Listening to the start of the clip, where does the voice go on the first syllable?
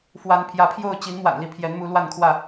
rising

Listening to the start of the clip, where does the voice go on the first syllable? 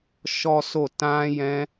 high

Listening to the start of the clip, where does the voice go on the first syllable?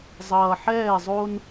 low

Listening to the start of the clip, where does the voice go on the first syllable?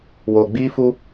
low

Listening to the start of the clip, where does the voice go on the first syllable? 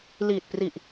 low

